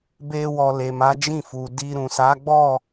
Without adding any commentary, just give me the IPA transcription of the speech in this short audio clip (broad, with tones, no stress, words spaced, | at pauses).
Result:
be˧wɔ˨ le˨ma˨˦d͡ʒĩ˦˨fu˨ di˧ɾũ˨ sa˨˦ɡ͡bɔ˦˨